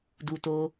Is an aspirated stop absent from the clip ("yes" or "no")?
yes